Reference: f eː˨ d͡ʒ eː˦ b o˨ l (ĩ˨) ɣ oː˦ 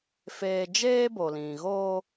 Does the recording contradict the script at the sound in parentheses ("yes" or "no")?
no